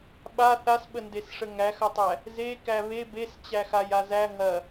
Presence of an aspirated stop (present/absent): absent